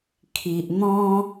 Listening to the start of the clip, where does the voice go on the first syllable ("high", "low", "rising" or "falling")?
low